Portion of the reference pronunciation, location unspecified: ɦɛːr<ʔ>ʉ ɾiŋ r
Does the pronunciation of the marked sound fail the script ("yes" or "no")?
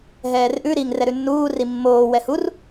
no